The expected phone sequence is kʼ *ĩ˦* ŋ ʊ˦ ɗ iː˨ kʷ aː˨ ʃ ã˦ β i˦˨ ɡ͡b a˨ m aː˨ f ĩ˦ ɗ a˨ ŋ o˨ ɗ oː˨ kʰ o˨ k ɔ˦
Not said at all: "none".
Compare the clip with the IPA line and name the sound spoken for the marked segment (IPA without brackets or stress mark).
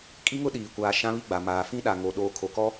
i˦